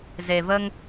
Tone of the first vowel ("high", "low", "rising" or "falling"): low